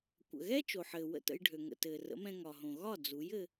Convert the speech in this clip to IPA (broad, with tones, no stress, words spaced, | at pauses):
kʷə̰˩ɣɛ˥ t͡ʃo˩ħɘː˩ wə̰˥˩tə̰˧jɖʱø˩ ŋə̰˩tɘː˩rə̰˩˥mɛ̃˧ ŋɒ˩ɦõ˩ ɣɒ˥˩ d͡zu˩˥jɘ˧